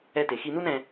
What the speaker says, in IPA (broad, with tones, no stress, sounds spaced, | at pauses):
ɛ˧ t e˩ x i˧ n u˥ n ɛ̃˧